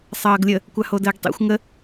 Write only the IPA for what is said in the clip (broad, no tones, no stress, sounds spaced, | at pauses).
sˤ ʌː ɡ lʲ ə | kʷ a h o d əː ɡ tˤ ḭ xʷ ŋ ə